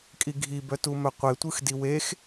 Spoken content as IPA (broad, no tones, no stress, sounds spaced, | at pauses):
kʼ i ɡʱ i b œ t u m œ qʷ e tʷ ɯ x d i w e x